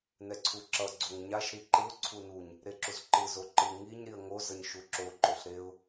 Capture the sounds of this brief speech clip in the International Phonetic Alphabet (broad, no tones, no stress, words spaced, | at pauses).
nɛǀʰuǁʌ ɡ͡ǀoŋɲaʃ ɾiǃɯʊ̯ ǀʰunuɲ | ɾeǁuzǃɯ zoǃɯ ŋiɲ ɾiə̯ŋo zʌɲʃuǁo ǃoɬɾeʊ̯